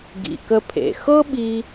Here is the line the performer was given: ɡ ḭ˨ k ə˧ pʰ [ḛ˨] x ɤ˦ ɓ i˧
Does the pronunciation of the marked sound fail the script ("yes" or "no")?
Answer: no